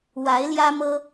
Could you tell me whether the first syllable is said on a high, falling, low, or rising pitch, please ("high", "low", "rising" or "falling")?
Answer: rising